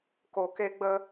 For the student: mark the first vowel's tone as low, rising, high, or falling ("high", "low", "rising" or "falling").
low